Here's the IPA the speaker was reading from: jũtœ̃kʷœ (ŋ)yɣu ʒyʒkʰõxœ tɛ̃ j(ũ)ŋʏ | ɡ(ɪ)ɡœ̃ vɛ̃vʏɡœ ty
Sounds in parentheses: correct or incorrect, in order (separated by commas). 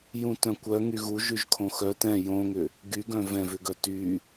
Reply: correct, incorrect, incorrect